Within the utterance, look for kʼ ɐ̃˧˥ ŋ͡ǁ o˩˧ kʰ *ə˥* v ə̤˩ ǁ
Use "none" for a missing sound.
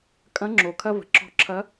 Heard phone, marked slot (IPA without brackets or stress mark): ɐ˥